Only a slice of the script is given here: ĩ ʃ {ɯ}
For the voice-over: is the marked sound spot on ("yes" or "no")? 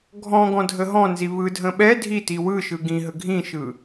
yes